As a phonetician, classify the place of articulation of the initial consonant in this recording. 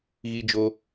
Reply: velar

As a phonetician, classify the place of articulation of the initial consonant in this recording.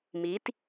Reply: labial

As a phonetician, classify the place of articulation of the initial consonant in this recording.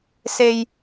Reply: alveolar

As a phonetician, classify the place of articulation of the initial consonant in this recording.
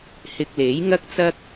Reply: glottal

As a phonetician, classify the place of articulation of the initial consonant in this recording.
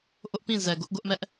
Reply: glottal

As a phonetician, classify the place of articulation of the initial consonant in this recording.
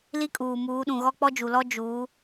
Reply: alveolar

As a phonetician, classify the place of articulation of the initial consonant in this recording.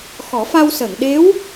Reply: velar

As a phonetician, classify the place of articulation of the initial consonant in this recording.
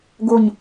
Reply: velar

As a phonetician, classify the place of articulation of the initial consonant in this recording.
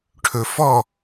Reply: retroflex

